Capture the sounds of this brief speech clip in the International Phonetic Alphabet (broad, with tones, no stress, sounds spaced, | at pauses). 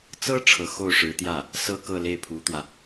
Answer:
t͡s ɤ˥ ʈ͡ʂʰ ɤ˧˥ x o˥˩ ʊ̯ ʂ ɻ̩˧˥ t̪ j ä˥˩ | s ɤ˥˧ k ɤ˥˧ l e˥˩ ɪ̯ pʰ u˧˥ t̪ w ä˧